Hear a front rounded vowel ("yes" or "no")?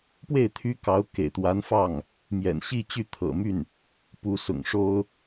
yes